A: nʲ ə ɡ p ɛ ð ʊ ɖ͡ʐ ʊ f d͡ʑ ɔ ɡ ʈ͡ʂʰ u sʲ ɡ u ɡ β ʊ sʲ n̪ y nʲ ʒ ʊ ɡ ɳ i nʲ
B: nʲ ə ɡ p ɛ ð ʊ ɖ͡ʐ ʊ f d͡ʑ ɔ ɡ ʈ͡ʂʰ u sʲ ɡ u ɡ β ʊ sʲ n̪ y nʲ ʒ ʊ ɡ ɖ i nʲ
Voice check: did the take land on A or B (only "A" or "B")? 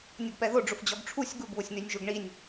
A